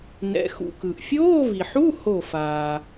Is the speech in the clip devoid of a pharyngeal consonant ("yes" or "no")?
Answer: no